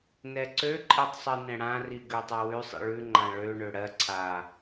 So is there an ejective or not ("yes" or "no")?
yes